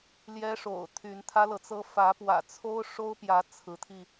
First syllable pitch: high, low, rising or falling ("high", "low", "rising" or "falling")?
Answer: high